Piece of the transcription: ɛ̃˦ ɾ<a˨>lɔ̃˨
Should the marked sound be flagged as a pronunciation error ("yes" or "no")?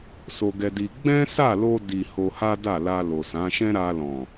yes